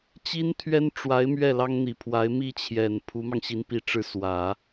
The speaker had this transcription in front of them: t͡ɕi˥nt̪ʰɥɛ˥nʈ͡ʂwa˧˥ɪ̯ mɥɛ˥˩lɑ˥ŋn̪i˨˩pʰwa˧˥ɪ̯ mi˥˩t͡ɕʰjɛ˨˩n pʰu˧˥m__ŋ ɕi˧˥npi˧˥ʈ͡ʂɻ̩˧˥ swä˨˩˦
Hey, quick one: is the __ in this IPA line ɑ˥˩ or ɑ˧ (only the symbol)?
ɑ˧